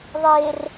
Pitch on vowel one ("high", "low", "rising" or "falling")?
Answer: low